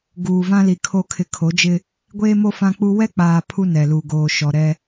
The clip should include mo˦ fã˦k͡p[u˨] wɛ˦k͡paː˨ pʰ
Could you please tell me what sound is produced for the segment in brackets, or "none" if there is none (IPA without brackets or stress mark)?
u˦